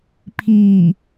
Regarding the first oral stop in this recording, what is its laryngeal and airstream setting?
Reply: aspirated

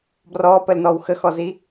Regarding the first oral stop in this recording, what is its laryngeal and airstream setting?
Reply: plain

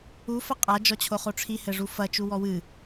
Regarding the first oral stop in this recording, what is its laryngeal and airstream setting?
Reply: ejective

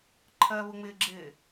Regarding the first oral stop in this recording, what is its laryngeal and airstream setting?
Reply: click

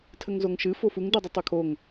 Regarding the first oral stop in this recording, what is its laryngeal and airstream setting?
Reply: aspirated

